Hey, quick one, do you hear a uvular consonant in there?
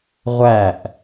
yes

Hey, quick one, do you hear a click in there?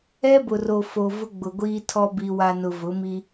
no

